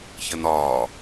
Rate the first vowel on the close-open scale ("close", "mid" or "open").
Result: mid